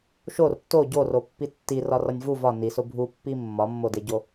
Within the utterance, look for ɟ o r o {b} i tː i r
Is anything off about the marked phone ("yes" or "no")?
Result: yes